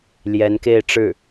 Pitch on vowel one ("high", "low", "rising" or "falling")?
rising